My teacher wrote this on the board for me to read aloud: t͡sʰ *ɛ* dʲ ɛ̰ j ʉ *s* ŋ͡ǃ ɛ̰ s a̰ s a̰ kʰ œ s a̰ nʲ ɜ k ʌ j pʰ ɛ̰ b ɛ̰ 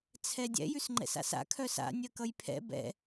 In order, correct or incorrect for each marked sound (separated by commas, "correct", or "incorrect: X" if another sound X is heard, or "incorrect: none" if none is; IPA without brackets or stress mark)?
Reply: correct, correct